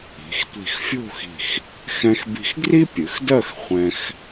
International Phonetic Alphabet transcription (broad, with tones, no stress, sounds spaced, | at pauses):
i̤˩˧ x tʷ i̤˧˩ x fʲ o̤˥˧ x i̤˧˩ x | x ɛ̃˧ x b i̤˧ x ɡ r i˥ pʲ ɨ˩˧ x d ɜ˥˧ x χʷ ɛ̃˧ x